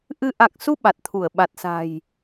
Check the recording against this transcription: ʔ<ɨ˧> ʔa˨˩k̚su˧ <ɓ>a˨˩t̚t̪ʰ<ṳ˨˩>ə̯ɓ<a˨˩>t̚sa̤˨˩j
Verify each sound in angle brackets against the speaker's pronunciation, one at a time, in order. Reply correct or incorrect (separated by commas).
correct, correct, incorrect, correct